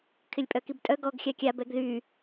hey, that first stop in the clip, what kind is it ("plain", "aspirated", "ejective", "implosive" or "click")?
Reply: aspirated